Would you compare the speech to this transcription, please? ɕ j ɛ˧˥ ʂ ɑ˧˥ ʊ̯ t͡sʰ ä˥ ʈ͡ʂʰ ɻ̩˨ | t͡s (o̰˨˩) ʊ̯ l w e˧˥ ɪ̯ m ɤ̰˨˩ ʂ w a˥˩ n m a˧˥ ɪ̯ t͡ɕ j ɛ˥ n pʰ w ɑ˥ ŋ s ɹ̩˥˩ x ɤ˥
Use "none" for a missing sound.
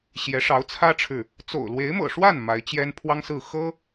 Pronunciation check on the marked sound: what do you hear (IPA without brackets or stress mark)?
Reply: o̰˨˩